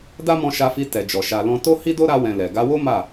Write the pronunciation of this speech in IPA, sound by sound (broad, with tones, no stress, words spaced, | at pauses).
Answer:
da˦mɔ̃˧ʃa˧fi˧ tɛ˨d͡ʒɔ˨ ʃa˨lɔ̃˧to˦hi˦ do˦ɾa˧wɛ̃˨ lɛ˨ ɡa˧wo˦ ma˦˨